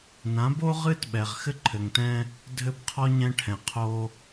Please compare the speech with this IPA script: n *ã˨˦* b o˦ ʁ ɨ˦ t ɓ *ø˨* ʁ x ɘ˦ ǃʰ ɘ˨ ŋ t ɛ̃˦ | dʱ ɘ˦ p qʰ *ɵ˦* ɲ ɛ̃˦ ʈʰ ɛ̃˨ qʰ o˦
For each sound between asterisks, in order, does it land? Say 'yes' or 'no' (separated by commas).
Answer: yes, no, no